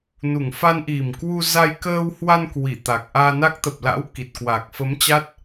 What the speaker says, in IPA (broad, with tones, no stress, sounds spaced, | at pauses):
n u˨˩ ŋ f a˧ n ʔ i˨˩ m k w u˧ z a˧ j k əː˧ w h w a˧ n k w i˧˩ t̪ a˨˩ k̚ ʔ aː˧ n a˦˥ k̚ t̪ ə˨˩ p̚ l a̰˧˥ w k i˨˩ t̚ k w a˨˩ k̚ f ə˨˦ m t͡ɕ a˦˥ t̚